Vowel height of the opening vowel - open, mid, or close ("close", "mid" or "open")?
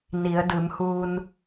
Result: close